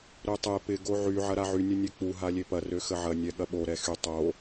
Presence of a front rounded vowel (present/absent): present